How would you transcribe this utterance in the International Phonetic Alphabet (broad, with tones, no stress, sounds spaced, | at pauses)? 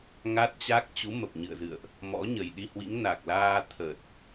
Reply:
ŋ a˦˥ t̚ t͡ɕ a˦˥ k̚ t͡ɕ u˨˦ m ə˨˩ p̚ ɲ ɨ̰˧˨ ə̯ z ɨ̰˧˨ ə̯ ʔ | m ɔ̰˧˥ ɲ ə˨˩ j ɗ i˧ h w ḭ˧˥ ŋ n a˨˩ k̚ l aː˧ t̪ʰ ə˨˩ t̚